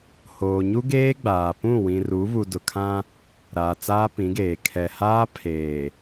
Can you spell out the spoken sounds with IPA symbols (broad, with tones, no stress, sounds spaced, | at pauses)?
h oː˨ ɲ u˦ ɡ eː˦ ɡ͡b aː˨ p ũ˦˨ w ĩ˨ r u˨˦ β u˨ d ʊ˨ kʰ ã˦ | ɾ aː˨ t͡s aː˦ p ĩ˨˦ ɡ eː˨ kʰ ɛ˨ h aː˦ pʰ eː˨